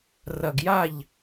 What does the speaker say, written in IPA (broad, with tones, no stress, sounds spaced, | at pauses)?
r ɐ˨ ɡ j a˦˨ ʎ